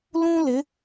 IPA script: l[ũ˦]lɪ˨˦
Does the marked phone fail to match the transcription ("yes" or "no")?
no